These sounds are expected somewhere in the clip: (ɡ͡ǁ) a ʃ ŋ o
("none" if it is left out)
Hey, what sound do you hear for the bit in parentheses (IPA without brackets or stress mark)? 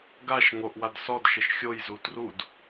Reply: ɡ